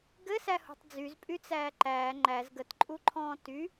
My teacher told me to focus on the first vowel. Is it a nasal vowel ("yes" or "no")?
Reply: no